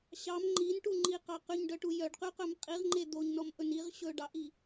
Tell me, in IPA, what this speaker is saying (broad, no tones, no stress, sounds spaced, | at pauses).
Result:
ɕ ɑ m ŋ͡ǃ i n ʈ u ŋ͡ǃ i q ɑ q y ɲ ɖ œ ʈ u j œ ɖ q y q œ m qʼ i ʁ ŋ͡ǃ e d̪ o ɲ n ɔ m ʔ ɵ n i ʁ ɕ ɵ ɖ ɑ ʔ i